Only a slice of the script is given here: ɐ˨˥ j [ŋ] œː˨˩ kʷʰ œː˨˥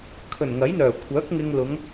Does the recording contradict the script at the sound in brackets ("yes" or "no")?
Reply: yes